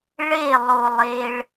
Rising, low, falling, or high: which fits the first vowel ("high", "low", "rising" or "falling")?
falling